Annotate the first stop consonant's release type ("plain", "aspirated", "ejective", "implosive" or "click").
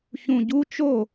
plain